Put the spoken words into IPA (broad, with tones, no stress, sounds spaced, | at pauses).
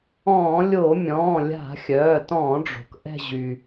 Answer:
ɔ̃ː˧˩˧ lʲ o˧˩˧ mʲ ɔ̃ː˩˧˩ lʲ a̤˧˩˧ xʲ œː˩˧˩ t ɔ̃ː˧˩˧ ɖ͡ʐ o̤˩ k ʔ ɛ̤˦˨ ʑ y˩